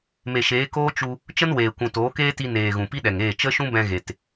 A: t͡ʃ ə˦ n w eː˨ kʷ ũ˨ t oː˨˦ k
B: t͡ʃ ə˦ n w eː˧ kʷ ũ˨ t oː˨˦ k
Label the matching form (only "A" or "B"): A